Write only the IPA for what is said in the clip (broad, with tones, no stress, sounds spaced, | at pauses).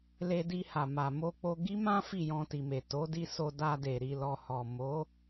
l e˧ d i˧ h a˨ m a˨ m o˧ k͡p o˧ ɡ i˦ m ã˦ f i˦˨ j ɔ̃˧ t i˨ m e˨ t o˨˦ d i˧ s o˧ d a˧ d e˨ ɾ i˨ l ɔ˨ h ɔ˨ m o˨˦